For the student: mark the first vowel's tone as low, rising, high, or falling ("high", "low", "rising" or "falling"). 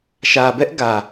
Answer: low